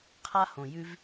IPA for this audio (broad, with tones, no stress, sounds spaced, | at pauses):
qʰ a˦ h õ˨ j ʉ˧ v